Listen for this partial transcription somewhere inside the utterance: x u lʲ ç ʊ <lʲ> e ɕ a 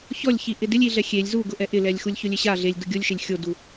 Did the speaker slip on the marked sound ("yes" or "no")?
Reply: no